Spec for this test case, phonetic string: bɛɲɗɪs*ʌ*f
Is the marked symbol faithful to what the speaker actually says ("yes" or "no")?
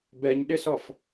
no